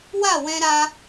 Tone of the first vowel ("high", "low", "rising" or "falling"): falling